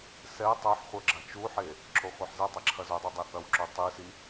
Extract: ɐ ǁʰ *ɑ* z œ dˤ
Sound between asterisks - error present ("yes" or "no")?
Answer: yes